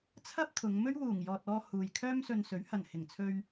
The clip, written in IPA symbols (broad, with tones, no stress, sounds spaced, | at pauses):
t͡sʰ ɐ˥ p̚ t̪ʰ ʊ˨˧ ŋ m ɵ˥ ɥ w uː˨˩ ŋ j ɔː˨ t̚ ɔː˧ h uː˨ j kʰ œː˥ m s ɵ˧ n s ɵ˨˥ ɥ h ɐ˨˩ n h ɪ˨˩ ŋ t͡sʰ ɵ˧ ɥ